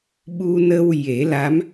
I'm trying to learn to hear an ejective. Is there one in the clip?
no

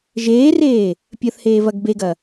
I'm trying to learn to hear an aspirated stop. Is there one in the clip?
no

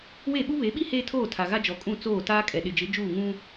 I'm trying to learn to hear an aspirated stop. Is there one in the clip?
yes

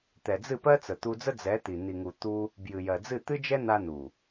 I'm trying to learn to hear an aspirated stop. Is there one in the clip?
no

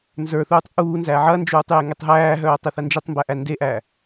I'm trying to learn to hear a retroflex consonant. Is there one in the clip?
no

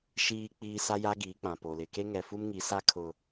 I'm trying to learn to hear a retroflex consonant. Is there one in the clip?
no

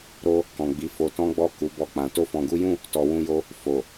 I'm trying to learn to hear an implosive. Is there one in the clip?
no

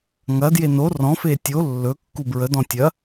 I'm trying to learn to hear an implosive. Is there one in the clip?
no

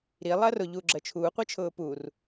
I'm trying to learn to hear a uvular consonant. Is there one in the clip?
yes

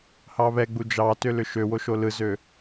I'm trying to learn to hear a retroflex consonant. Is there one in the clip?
no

